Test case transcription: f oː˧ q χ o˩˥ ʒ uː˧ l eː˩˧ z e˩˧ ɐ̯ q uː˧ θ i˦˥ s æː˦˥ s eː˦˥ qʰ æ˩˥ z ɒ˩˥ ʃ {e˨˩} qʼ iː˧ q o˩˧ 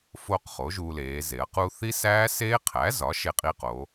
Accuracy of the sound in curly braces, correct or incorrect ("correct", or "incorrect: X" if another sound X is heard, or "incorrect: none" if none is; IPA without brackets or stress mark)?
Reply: incorrect: e˧